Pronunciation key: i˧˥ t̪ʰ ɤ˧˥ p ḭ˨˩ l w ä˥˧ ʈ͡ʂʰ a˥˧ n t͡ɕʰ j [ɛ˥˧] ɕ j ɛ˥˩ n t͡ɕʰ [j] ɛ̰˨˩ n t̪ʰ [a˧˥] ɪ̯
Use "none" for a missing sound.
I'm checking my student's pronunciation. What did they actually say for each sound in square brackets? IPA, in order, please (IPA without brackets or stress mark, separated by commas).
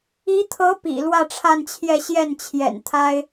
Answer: ɛ˥˧, j, a˥